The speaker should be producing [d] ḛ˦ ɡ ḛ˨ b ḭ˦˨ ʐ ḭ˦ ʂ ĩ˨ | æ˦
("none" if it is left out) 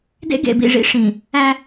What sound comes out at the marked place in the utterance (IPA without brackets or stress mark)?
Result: d